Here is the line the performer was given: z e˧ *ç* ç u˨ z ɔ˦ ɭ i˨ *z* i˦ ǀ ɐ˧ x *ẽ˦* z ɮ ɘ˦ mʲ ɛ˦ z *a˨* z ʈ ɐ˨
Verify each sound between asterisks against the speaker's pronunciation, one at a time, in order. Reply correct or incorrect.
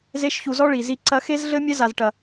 incorrect, correct, incorrect, correct

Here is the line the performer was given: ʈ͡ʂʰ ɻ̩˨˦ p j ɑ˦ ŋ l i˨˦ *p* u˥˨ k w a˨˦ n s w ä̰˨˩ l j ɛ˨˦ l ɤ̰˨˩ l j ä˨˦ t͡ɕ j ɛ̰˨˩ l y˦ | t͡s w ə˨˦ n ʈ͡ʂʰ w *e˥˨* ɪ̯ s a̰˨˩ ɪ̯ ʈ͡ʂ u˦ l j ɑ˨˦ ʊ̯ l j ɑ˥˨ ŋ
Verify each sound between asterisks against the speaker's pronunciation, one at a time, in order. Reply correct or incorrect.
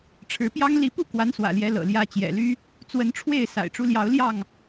correct, correct

